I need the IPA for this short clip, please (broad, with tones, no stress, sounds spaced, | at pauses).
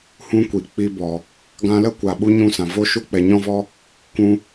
h ũ˦ kʷ i˨ k͡p i˧ b ɔ˨ | ɡ ã˧ l ə˦ kʷ a˨ ɓ u˧ ɲ ũ˦ s ã˨ v o˦ ʃ u˦ k͡p ɛ˨ ɲ ɔ̃˦ v ɔ˦ | k ũ˧